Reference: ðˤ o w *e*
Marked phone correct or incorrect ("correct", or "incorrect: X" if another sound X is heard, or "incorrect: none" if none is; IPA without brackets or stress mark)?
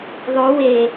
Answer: correct